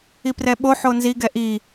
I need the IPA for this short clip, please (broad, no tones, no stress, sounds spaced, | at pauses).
i p r ɛ ɓ o ħ o n z i ɡ ɛ ʔ i